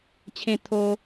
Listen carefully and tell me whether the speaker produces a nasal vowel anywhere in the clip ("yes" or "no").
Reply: yes